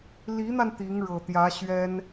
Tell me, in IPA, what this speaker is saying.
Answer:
l i˧˥ n̪ a˧ n t̪ i˧˥ ŋ ɻ ɤ˨˩ t̪ j ä˧˥ ɕ ɥ ɛ˥ n

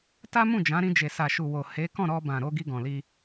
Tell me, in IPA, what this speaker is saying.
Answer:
t a˦ m ũ˦˨ d͡ʒ ã˨˦ ɾ ĩ˧ d͡ʒ e˨ s a˨ ʃ u˨ w o˨ h e˨˦ k ɔ̃˦˨ ɾ ɔ˧ b ã˨ ɾ o˧ ɡ i˧ ɡ ɔ̃˨ l i˧

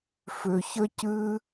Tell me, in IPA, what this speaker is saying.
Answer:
f ʏ˨ ç ə˦ c ɨ˦

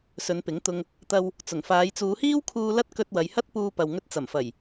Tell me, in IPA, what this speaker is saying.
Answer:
s ɵ˨˧ n p ɪ˨˥ ŋ t̪ ʊ˧ ŋ | t̪ ɐ˧ w | t͡s ʊ˨˩ ŋ f aː˨˧ j t͡s uː˨˧ h iː˥ w kʰ uː˧ l ɐ˥ t̚ k ɵ˧ t̚ w ɐ˨˧ j h ɐ˥ t̚ p uː˧ p ɐ˨ w ŋ ɵ˧ t̚ t͡s ɐ˨˩ m f ɐ˨˩ j

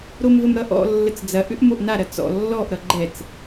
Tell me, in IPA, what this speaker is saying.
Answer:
ɾ o m v ə m ɾ ʌ ʔ ɔ̰ lː ə t͡s d͡z ɐ ʔ ʏ ʔ m o ʔ n a ɾ ɐ t͡s ɔ̰ lː ɔ ʔ ɾ ʌ ɡ͡ǃ ɛ t͡s

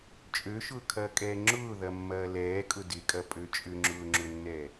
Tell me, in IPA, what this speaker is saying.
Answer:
t͡ʃʼ ø ʃ ʊː kʰ ɐː kʼ ɛː ŋ͡ǁ ʊː ð ɐ mː ɐː l ɛː kʼ ʊ d ɪ kʼ ɐ pʼ ø t͡ʃʼ ʏ ŋ͡ǁ ʊː ŋ͡ǁ ʊ nː ɛ

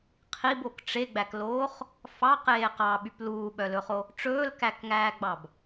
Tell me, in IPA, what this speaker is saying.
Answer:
qʰ i b o k ʈ͡ʂ e ɡ͡b æ k l oː χ | f ɑ q eː q ɑ ɓ y p l uː ɓ œ l ɵ χ o | ʈ͡ʂ ɵː l k æ k ŋ æː ɡ͡b ɑ b

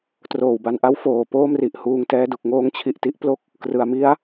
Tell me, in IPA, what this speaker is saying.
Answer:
t r oː˨˩ w b a˧ n ʔ a˦˥ w f oː˨˩ p oː˥˩ m r i˨˩ ʔ h uː˧ ŋ t ɛː˦˥ d u˨˩ k̚ ŋ oː˧ ŋ t͡ɕʰ i˨˩ ʔ t i˦˥ ʔ p l o˥˩ k̚ | k r ɯ˩˦ a̯ m i˦˥ a̯

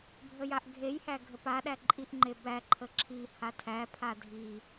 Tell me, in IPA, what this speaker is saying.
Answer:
bʱ ə j a ʔ ɡʱ e j h æ ɡʱ ə p a ɗ æ ǃʼ i ʔ ŋ͡ǃ e b æ ǃʰ ə ǁʰ i h a tʰ æ pʰ a dʱ i

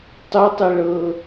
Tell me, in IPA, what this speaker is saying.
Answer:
tˤ u tˤ e ɭ ɤ

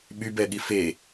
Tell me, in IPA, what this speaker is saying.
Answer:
ɓ y b ɛ ɠ i f e

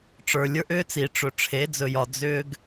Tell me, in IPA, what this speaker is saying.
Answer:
ʈ͡ʂ ə˞˨ lʲ ə˞˦ ʔ ʏː˦ t͡s i˨ ʈ͡ʂ ɵ˨ ʈ͡ʂʰ e˨˦ d͡z ɵ˨ j ɒ˨ d͡z ʏː˧ ɡ

